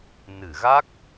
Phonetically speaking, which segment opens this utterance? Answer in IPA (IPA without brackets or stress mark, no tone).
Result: n